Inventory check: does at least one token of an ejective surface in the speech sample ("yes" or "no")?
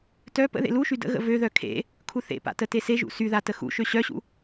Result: no